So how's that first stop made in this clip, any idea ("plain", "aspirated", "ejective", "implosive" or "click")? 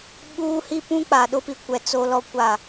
implosive